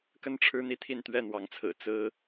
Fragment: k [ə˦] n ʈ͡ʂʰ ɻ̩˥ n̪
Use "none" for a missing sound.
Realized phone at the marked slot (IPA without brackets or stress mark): ə˥˩